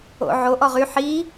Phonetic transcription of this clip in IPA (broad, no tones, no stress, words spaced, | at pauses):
o̰ʕo ʔɔʁy ħi